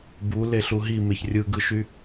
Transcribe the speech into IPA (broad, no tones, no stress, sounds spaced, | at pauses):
b u l e ɬ u ɦ i m e ç rʲ ɯ ɡ ɯ ʃ y